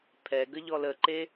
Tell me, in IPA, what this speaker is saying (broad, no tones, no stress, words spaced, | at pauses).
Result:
pʰɛɡə ʎɔləǃe